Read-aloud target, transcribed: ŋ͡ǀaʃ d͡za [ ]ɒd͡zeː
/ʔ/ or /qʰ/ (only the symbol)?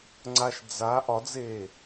ʔ